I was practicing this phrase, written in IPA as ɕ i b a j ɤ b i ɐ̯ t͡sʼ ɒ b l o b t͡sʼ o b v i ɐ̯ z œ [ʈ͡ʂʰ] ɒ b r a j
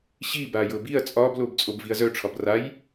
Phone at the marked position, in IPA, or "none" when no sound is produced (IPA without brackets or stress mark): ʈ͡ʂʰ